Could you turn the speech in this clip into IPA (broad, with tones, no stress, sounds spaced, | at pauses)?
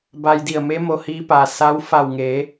b a˧ j d i˧˩ ə̯ m e˧˥ m o˧ h iː˧˥ p a˧˩ s a˧˥ w f a˧˩ w ŋ e˩˧